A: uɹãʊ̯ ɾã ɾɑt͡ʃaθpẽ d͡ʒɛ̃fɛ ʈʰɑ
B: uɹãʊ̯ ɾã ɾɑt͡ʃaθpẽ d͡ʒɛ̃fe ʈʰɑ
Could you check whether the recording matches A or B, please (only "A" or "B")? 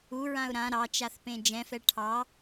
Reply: A